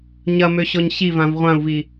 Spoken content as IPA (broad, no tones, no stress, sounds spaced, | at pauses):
ɲ ɐ m ø ɕ ɔ ɲ ɕ i v ã v ʁʷ ã u̯ v i